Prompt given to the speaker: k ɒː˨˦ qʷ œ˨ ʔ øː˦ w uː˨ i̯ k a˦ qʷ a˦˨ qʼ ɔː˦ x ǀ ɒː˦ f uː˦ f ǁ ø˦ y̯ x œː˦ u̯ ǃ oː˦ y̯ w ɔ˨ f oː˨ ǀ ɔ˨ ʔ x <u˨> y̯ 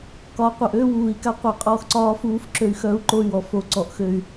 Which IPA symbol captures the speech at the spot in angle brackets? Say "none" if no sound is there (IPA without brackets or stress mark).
ø˨